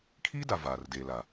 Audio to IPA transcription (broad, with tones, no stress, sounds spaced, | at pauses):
kʰ iː˦ d a˨ v aː˨ r d e˨ l a˨